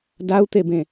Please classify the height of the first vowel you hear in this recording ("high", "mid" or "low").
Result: low